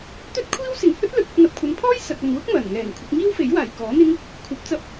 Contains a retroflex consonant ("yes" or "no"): no